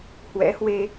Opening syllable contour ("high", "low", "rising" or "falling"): rising